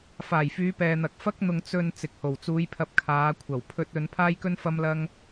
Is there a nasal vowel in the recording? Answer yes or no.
no